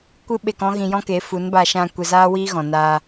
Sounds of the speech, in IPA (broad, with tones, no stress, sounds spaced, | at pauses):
kʷ ɨ˦ ɓ e˧ k ɔ̃˦ ɣ ĩ˧ j ɔ̃˦ k e˨˦ f u˨˦ n b aː˧ ʃ ã˧ kʷ e˧ z aː˦ w iː˦ ɣ ɔ̃˨ n aː˧